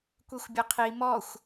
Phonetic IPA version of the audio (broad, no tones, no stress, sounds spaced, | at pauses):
kʷ i xʷ bʲ ɘ qʰ i m ɔ xʷ